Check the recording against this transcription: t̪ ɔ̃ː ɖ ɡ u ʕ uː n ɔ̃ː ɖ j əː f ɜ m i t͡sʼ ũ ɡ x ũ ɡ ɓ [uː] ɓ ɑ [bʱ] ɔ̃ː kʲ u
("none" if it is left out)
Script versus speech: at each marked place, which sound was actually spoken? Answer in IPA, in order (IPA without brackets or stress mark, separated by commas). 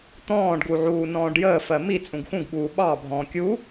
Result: uː, bʱ